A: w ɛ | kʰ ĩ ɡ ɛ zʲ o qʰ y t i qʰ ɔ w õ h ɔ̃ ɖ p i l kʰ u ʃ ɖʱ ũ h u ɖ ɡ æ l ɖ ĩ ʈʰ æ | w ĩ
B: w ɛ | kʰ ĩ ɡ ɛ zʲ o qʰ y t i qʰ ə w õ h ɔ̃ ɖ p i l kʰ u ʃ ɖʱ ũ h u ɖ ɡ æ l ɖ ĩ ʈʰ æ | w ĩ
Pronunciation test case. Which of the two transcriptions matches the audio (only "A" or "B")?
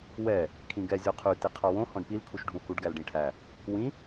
A